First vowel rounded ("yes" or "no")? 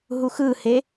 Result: yes